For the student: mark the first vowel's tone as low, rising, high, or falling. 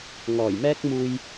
low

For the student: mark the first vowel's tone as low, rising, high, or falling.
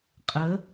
rising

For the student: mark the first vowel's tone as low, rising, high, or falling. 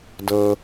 low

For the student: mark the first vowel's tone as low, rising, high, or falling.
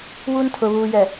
high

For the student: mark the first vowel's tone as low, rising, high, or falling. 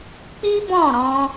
high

